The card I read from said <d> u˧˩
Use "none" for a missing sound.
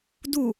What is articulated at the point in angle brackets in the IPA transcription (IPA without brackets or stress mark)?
d